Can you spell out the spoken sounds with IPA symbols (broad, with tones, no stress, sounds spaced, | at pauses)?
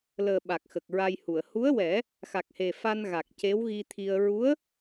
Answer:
l əː˨˩ ɓ a˨˩ k̚ x ə˨˩ k̚ ɹ a˧ j h u˨˩˨ ə̯ h u˧˥ ə̯ w ɛ˨˩˦ | x a˨˩ k̚ h e˨˩ f a˧ n ɣ a˨˩ k̚ c e˧˥ w ɣ i˧ t̪ʰ i˧ ə̯ ɹ u˧˥ ə̯